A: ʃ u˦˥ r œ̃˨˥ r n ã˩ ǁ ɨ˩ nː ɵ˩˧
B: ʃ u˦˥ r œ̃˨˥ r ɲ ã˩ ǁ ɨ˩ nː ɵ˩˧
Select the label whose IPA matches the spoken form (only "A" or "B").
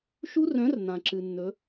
A